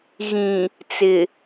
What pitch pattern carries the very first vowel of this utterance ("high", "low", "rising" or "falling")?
low